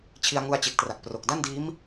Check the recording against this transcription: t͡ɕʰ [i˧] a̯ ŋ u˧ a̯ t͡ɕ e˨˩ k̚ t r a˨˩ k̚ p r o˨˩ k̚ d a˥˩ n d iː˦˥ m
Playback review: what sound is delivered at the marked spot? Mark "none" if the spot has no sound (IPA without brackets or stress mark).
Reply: i˧